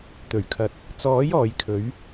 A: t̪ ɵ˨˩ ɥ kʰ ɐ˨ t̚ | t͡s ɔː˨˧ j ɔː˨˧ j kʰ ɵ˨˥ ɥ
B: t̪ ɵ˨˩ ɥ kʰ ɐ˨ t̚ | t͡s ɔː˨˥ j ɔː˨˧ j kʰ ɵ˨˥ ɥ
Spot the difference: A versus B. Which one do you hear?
B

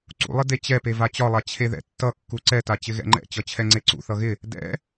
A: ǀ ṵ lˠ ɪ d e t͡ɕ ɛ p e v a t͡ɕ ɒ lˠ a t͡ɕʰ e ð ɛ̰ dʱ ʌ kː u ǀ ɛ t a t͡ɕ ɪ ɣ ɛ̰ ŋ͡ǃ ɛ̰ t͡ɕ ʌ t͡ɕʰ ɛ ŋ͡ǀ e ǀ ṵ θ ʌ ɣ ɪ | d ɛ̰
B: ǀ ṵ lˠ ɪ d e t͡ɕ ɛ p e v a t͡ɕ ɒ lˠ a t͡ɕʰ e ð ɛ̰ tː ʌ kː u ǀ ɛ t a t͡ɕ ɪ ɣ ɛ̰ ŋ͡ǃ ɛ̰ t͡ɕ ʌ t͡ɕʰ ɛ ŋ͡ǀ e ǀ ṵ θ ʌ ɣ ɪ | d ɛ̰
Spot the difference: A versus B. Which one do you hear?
B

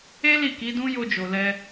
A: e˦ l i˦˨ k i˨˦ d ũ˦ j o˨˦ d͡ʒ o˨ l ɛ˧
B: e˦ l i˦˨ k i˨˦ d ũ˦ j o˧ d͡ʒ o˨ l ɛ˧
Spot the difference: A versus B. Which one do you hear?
B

